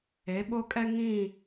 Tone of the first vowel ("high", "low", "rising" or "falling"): rising